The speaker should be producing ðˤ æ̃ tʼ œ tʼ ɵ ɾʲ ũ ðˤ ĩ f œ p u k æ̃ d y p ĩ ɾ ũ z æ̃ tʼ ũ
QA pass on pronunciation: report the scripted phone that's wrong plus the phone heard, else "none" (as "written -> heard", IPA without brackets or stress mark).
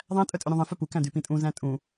ɾ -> tʼ